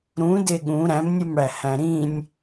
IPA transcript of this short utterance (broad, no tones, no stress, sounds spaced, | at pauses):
ɾ ũ d e ɠ ũ ɾ æ̃ m nʲ u m ɽ æ h æ̃ ɾ ĩ nʲ